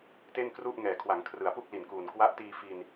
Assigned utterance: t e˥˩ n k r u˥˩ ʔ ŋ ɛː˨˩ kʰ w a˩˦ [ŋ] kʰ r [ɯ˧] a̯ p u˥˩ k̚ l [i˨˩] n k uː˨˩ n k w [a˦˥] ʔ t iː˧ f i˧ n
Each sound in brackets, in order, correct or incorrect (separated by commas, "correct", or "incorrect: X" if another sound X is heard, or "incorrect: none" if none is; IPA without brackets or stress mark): correct, incorrect: ɯ˩˦, correct, correct